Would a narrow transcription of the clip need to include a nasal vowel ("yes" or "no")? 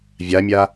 no